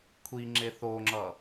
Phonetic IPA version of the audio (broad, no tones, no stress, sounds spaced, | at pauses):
kʷʰ i ŋ͡ǁ e θ o ŋ͡ǁ ʌ